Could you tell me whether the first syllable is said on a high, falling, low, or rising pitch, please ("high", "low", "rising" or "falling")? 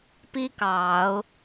high